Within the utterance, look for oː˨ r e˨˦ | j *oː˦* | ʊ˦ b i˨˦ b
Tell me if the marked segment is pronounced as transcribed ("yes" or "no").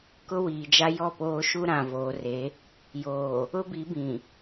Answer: no